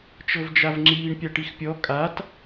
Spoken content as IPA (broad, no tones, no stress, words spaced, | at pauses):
t͡ʃɤvd͡ʒavŋ͡ǁiːɳ pʲaʈixpʲɔ kʼat